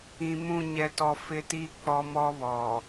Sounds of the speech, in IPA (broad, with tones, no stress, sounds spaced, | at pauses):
ĩ˨ m ũ˦˨ ɲ ɛ˦ t ɔ˦ f ɪ˦ t i˦ k͡p ɔ˦ m ɔ˦ β ɔ˨